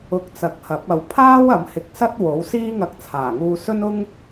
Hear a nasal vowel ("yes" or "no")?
no